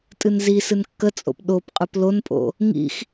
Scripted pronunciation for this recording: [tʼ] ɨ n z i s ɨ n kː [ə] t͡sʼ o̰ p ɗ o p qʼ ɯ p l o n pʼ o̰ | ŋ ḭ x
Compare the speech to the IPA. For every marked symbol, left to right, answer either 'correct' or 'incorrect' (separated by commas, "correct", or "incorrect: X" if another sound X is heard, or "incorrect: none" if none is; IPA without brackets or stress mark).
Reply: correct, correct